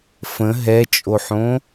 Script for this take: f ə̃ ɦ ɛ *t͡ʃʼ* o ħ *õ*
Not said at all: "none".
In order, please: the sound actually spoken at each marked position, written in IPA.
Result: t͡ʃʼ, õ

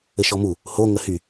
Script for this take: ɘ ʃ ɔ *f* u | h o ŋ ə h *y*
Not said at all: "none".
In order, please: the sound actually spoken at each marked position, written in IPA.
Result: m, y

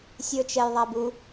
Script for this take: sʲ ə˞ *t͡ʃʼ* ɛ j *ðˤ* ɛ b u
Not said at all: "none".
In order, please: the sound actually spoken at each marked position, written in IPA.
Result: t͡ʃ, ðˤ

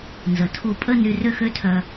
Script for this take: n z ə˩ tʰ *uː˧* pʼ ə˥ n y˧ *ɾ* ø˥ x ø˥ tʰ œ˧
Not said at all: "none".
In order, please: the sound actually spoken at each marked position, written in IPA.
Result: u˧, r

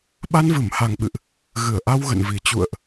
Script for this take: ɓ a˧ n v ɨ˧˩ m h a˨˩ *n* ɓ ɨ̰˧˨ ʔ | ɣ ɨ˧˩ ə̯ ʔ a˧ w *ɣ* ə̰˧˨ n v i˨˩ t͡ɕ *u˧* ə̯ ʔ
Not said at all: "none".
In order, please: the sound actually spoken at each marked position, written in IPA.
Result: ŋ, ɣ, ṵ˧˨

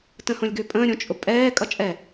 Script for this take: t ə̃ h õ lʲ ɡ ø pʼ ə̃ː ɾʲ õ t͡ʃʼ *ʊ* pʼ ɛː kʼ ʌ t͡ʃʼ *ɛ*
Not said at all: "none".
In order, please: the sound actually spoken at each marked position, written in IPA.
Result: ʊ, ɛ

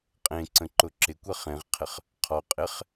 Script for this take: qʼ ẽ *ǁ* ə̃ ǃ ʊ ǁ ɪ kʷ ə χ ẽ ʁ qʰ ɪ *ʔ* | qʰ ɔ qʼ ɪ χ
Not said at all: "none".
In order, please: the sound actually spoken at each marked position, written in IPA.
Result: ǀ, χ

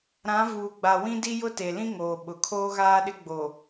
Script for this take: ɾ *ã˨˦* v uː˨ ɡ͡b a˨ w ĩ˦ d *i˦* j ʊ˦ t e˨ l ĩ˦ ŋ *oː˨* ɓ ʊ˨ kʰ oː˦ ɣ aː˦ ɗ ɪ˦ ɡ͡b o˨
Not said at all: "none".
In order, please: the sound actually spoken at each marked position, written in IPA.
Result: ã˨˦, i˦, oː˨

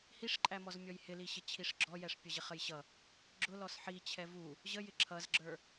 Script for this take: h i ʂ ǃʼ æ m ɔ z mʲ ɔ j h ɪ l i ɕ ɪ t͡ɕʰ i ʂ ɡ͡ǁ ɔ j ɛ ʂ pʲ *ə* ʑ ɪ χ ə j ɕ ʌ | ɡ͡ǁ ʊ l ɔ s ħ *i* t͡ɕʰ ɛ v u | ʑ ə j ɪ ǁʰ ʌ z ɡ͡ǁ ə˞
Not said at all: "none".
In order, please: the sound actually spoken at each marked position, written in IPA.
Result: ʌ, i

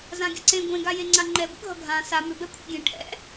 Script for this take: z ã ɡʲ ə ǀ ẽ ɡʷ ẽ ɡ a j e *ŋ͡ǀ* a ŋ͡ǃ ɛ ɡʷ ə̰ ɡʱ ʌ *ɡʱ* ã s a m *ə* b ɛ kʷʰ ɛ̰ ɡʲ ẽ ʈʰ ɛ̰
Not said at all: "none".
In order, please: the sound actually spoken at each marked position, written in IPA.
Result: ŋ͡ǀ, ɡʱ, ʏ

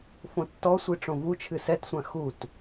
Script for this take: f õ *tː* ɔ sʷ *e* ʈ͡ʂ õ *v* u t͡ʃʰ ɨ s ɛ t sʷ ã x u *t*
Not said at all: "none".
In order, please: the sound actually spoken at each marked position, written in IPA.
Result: tː, i, v, t

